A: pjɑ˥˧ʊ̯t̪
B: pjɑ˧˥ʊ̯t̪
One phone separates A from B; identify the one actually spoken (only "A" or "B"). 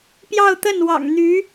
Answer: A